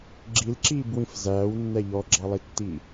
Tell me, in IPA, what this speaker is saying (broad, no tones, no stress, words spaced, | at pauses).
ɡ͡ǁilǁiːbwĩf zæːwnːɛ ʎɔɡ͡ǁɑlˠitːiː